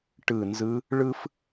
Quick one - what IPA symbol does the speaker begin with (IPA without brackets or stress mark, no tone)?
ʈ